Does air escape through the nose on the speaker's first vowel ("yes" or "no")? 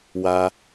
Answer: no